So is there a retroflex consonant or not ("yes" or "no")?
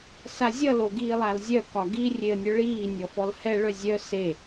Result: yes